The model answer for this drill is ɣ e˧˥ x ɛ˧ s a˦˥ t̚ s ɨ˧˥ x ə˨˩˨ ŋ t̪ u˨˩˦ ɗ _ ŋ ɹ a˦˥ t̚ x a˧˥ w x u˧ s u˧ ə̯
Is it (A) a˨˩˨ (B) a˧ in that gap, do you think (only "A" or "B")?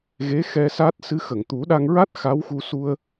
B